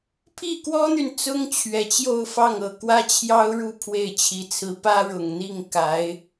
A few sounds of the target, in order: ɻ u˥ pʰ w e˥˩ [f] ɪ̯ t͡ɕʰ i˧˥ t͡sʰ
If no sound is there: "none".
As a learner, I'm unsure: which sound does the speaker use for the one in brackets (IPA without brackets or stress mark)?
none